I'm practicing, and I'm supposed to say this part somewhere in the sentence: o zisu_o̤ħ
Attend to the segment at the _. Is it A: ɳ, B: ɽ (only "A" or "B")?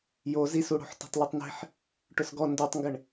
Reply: B